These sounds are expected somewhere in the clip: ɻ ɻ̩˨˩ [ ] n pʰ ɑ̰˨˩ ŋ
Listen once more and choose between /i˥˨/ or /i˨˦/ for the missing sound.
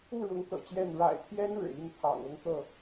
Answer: i˥˨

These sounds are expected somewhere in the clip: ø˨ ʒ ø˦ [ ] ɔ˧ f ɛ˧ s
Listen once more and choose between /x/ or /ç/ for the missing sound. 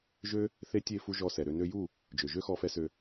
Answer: x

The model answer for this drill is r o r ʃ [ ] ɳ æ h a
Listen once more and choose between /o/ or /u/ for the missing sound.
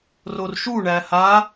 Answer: u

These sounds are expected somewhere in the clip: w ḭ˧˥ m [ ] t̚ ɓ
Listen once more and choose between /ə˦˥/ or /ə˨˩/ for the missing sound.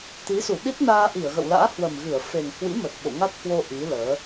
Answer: ə˨˩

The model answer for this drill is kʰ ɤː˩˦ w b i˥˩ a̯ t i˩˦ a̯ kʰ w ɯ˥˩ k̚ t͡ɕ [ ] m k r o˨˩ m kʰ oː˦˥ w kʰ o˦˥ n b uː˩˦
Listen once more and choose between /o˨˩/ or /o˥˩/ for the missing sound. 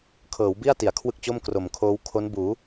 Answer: o˥˩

